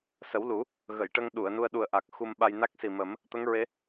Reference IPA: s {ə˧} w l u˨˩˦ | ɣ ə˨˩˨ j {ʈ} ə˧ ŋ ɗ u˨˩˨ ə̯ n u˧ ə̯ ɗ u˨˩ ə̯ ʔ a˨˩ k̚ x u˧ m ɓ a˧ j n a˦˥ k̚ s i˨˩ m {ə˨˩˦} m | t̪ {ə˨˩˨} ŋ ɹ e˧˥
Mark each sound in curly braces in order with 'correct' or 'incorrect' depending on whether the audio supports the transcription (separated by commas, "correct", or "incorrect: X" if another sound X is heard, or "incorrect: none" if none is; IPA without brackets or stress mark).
incorrect: ə˨˩˦, correct, correct, incorrect: ə˧˥